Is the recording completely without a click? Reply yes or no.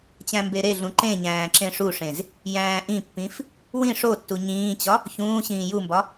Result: no